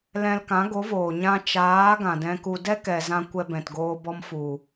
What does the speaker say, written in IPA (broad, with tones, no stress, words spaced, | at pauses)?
lɛ̃˧lkã˨˦ɡo˨˦voː˨ ɲã˧t͡ʃaː˨˦ ɡã˨dɛ̃˧ku˧ dɛ˦kɛ˨zã˧ kʷɛ˧bɛ̃˨tɡoː˧bɔ˧m fu˨